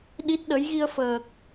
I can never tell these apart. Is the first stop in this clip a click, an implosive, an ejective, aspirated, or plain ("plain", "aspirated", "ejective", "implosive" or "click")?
implosive